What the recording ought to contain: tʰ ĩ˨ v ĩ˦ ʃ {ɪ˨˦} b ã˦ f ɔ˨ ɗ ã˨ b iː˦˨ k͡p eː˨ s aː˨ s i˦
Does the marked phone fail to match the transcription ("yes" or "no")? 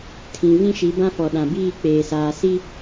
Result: yes